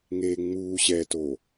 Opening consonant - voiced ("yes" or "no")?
yes